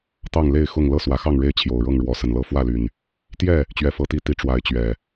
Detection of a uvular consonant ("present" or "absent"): absent